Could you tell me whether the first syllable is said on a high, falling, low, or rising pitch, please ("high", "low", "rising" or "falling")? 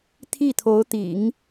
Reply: falling